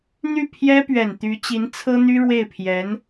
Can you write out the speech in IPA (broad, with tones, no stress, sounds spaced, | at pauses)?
n̪ y˥˩ pʰ j ɛ˥ p ɥ ɛ˨˩ n t̪ y˧˥ t͡ɕ i˧˥ n t͡sʰ ɤ˥ n̪ y˥ ɻ w e˥˩ ɪ̯ pʰ j ɛ˧˥ n